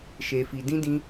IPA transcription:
ʃ e˨ f i˨ d ĩ˧ d ĩ˧

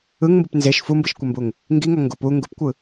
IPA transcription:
ɯ ŋ m b ɯ p n z e ʃ f u m b ɯ ʃ kʷ ɛ m b u ŋ | ŋ ɡ i ŋ ʌ ŋ ɡ u p u ŋ ɡ u p kʷ ɯ

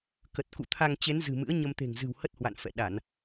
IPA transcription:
k ə˨˩ t̚ k ṵ˧˨ t̪ʰ a˧ ŋ t͡ɕ e˨˦ n z ɨ̤˨˩ m ɨ̰˧˥ ə̯ ɲ ə˧ m t̪ e̤˨˩ ŋ z ɨ̤˨˩ w h ə˦˥ t̚ h w a̰˧˨ n f ɛ̰˧˨ ɗ a˧˩˨ n

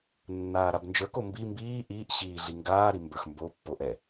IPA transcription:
nː aː ɾ a b n d͡ʒ ə˞ k o m b i m b iː ʔ iː ʔ ɕ iː ɮ i ŋ ɡ aː ɾ i m b ə˞ x m b o pː o ʔ ɛ

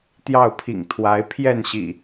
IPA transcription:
t̪ j ɑ˥˨ ʊ̯ pʰ ḭ˨˩ ŋ t̪ʰ w a˨˦ ɪ̯ pʰ j ɛ˥˨ n ɕ ḭ˨˩

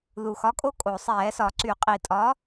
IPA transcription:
ð u˨˩ x ɒ˨˥ kʼ o˥˧ kʼ o˨˩ sˤ ɛː˧˩˧ s ɒ˧˩˧ ǀ y˧˩˧ qʼ i˨˩ tʼ ɒ˨˥

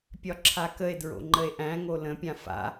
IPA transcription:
pʲ ɒ ǁʰ a k ə e̯ d ɹ o̰ ŋ͡ǃ ə e̯ ʔ æ̃ ŋ o l ə̃ pʲ ã f a̰

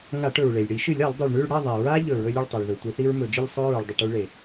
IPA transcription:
ŋ a˧˩˧ ʈ ɵ˩ ɹ ɭ e˩ lʲ ɽ i˧˩˧ ʃ ɨ˧˩˧ lʲ a˧˩˧ lˠ dˤ i˩ ɭ ɳ ʉ˥˨ ɭ ɽ ɐ˥˨ ðˤ e˩ ɹ a˦ ʎ ɵ˧˩˧ ɹ ɵ˦ lʲ o˥˨ ɭ tˤ i˩ ɭ ð ɵ˩ tʷ i˧˩˧ θ i˦ ɹ m ɵ˧˩˧ d͡ʒ ɨ˥˨ lʲ sˤ o˦ ɹ u˩ ɭ dˤ ɐ˧˩˧ ʈ u˦ ɭ e˩

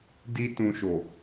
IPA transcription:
d i˦ t ũ˧ ʃ o˨

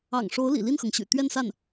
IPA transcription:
ɑ̰˨˩ ŋ ʂ o˧˥ ʊ̯ l ḭ˨˩ l i˥˩ n x ɤ˩ ŋ ɕ y̰˨˩ t̪ ɥ ɛ˥˧ n s a˥˩ n

